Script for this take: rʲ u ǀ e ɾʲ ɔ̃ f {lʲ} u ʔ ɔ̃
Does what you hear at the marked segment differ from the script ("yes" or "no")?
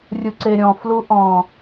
yes